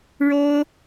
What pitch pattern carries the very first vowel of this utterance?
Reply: high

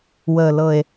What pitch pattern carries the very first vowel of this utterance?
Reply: low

